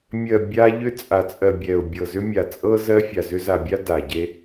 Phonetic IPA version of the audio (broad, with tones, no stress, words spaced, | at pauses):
mʲɜ˨ bʲa˦ʎʏ˦ t͡sʼa˨t͡sʼɜ˨ bʲɛ˨ʊ̯ bʲɤ˨zʏ˦mʲa˨ t͡sʼɤ˦ zɜ˦fʲa˨zʏ˦ za˨bʲa˦ da˨ ɟe˦